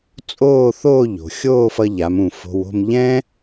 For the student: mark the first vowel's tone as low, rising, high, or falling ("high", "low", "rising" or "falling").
falling